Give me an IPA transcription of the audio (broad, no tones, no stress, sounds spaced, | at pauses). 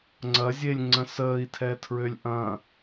ŋ͡ǀ ɐ zʲ e lʲ ŋ͡ǀ ə̃ s əː i̯ tʰ ɛ tʰ ɹ ø lʲ ʔ ɐ̃